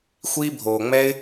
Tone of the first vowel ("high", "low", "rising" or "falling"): high